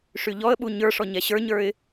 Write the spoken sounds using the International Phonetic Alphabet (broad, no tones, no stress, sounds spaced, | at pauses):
ʂ y ʎ ɔ ə̯ ɓ u ɲ ə˞ ʂ ɔ ɲ ɛ ɕ ə˞ ɲ ə˞ ɪ̯